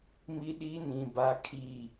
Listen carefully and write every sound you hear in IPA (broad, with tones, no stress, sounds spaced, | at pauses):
m i˦ ɗ i˦ n ĩ˨ b a˦ kʰ i˦˨